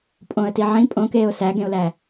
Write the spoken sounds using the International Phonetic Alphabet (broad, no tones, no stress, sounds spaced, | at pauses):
pʼ õ ə̯ t i ʕ ĩ pʼ õ k eː ʊ̯ s æ ɡ ẽ ʊ̯ l æ